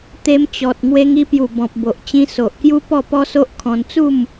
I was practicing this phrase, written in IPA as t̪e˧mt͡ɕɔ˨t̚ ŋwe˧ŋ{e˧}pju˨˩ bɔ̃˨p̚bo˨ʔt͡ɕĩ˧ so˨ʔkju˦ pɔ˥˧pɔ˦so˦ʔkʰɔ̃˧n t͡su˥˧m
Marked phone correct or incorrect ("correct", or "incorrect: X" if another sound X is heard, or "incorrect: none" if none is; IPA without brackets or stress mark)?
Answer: incorrect: i˧